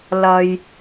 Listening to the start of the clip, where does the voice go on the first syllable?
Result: low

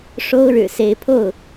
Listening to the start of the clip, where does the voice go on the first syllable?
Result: high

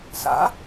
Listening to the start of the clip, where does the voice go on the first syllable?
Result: rising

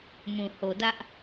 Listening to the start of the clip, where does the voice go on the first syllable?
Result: low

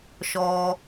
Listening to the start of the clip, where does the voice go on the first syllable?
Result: low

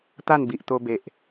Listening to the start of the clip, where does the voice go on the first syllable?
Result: falling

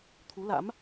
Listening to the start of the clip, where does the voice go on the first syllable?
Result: rising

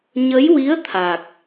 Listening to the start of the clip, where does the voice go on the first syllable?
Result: rising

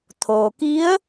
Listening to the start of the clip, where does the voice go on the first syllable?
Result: low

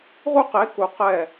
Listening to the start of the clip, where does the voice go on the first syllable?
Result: high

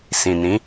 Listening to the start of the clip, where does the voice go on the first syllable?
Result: low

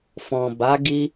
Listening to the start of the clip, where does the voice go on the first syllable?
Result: low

